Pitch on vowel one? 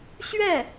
falling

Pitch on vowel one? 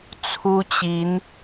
high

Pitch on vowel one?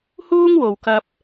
high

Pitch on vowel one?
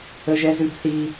high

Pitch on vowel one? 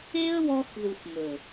high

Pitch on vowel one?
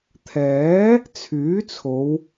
rising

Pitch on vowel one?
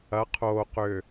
rising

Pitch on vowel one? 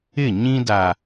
falling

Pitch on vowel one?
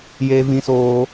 high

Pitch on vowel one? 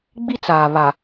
high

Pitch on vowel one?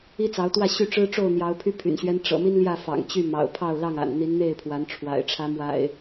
high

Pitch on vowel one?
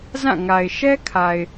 falling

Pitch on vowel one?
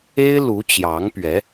high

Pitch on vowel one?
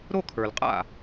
falling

